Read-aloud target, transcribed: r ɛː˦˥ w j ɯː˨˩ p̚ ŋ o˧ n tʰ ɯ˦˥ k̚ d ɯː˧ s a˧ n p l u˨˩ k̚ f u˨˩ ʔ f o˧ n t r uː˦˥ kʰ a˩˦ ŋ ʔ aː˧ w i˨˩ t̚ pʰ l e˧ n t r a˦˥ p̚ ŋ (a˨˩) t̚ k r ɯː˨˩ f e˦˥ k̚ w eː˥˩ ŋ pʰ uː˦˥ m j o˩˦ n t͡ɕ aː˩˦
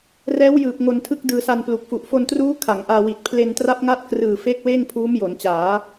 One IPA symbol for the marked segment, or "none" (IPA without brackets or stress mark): a˥˩